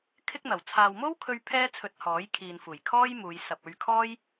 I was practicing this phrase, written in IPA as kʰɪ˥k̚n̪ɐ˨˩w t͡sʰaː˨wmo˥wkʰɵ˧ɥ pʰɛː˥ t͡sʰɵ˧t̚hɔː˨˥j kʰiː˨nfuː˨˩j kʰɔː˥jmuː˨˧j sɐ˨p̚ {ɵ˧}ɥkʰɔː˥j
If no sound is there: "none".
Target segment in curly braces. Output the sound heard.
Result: ɵ˧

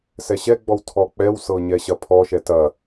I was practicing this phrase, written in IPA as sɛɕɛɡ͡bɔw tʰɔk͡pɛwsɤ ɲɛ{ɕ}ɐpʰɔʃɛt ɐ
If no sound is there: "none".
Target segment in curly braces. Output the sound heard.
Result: ɕ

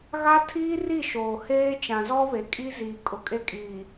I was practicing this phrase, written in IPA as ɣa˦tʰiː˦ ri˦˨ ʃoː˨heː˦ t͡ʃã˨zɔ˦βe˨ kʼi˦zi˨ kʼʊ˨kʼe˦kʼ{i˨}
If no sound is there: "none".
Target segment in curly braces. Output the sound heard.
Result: iː˨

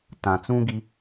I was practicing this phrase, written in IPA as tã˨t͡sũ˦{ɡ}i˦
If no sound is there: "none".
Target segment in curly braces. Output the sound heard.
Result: ɡ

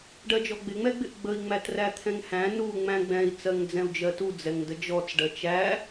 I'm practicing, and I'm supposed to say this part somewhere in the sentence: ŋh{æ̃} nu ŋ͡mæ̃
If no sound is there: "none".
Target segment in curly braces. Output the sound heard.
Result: æ̃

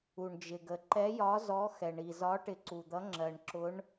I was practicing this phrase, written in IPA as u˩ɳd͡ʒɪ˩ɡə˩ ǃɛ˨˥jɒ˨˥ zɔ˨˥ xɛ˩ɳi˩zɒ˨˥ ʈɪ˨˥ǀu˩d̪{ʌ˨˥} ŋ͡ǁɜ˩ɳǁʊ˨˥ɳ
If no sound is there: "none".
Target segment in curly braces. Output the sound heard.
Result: ʌ˨˥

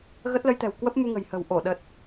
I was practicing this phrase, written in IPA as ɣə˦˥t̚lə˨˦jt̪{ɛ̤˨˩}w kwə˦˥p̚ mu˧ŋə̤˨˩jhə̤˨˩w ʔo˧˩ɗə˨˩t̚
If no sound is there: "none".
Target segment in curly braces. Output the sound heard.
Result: ɛ̤˨˩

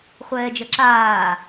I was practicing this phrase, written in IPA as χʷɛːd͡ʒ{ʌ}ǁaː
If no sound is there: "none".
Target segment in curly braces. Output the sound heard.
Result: ʌ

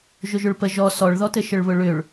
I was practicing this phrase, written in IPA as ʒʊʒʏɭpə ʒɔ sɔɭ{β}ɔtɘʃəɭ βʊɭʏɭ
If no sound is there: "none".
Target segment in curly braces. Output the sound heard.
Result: ð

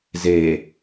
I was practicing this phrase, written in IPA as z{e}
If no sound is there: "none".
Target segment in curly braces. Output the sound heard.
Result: e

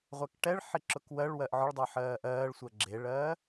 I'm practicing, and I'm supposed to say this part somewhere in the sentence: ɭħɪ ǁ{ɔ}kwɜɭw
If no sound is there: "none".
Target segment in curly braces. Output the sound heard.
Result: ʊ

